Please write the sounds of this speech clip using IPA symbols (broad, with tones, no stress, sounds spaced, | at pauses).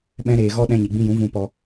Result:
ɓ ɛ̃˦ ɾ eː˧ ɣ ɔ˦ ɗ ɛ̃˧ ɲ i˨ ɡ͡b ĩ˧ j ũ˨˦ v ũ˧ p ɔ˧